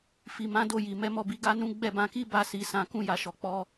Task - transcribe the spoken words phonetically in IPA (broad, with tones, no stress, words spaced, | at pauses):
fi˨mã˨˦do˦˨ji˨ mɛ˨˦mɔ˦˨bi˨˦ ɡa˦nũ˦ ɡ͡bɛ˦˨bã˧ki˦ ba˦si˧ sã˨kũ˧ja˨ʃɔ˨ k͡pɔ˧